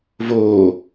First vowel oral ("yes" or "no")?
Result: yes